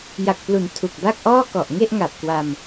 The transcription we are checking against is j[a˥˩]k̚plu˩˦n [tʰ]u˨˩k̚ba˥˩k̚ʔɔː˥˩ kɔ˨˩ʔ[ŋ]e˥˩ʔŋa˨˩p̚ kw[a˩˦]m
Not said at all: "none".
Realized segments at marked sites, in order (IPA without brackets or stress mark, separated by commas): a˨˩, tʰ, ŋ, a˧